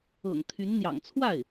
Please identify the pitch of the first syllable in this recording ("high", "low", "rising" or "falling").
low